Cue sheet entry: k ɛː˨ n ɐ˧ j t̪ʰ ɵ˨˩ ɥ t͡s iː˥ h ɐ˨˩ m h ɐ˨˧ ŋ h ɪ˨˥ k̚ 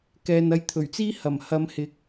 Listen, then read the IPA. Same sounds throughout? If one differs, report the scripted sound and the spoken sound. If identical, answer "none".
ŋ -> m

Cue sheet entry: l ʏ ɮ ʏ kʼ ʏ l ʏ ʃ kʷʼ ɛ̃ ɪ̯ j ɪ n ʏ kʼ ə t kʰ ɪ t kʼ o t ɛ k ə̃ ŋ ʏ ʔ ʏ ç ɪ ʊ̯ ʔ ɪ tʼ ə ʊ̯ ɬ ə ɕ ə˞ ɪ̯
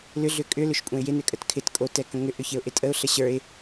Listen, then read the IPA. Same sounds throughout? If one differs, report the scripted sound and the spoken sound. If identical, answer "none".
none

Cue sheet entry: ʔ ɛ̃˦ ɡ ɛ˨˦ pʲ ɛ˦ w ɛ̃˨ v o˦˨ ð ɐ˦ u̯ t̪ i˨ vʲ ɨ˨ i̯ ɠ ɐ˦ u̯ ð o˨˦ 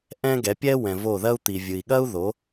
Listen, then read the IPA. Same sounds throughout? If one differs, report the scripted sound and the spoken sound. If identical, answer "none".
none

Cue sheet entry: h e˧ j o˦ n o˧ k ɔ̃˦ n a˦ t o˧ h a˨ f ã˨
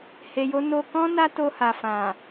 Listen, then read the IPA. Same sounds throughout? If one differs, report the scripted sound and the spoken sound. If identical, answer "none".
none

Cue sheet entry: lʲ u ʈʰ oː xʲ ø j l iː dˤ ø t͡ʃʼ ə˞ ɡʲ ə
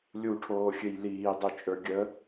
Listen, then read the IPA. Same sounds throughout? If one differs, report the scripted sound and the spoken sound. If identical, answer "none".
none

